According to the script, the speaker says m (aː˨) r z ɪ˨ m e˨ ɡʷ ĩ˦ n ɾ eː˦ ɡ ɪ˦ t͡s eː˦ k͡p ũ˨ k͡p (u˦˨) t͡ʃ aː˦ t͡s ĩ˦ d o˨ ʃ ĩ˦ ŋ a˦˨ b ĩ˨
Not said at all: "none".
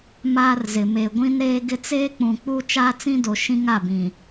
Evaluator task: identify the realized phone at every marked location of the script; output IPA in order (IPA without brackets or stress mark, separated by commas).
aː˦, u˦